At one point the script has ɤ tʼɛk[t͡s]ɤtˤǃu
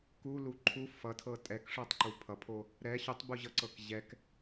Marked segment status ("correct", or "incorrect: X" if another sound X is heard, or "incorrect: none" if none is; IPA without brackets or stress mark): incorrect: ʂ